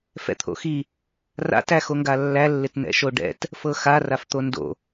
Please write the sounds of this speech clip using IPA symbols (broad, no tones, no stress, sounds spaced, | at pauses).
f ɛ̰ t̪ʰ o̰ x i | r a̰ t æ x o ŋ ɡ a lː æ lː ɪ t n ɛ̰ ʃ o ɖ ɛ̰ t | f ɤ x a r a f t̪ o n d o̰